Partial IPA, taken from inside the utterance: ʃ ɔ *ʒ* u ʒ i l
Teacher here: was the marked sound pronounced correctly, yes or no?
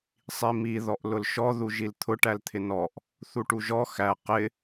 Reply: no